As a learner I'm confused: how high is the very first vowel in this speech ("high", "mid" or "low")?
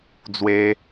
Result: mid